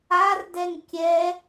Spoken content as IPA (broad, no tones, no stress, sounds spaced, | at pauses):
a r d ɛ ŋ kʲ ɛ